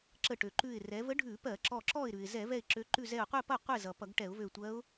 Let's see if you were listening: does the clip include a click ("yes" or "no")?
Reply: yes